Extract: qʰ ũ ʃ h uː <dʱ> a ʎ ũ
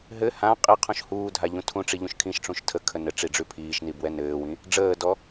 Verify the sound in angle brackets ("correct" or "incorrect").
correct